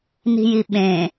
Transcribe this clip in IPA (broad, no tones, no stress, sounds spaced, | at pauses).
n i̤ j i ɓ ẽ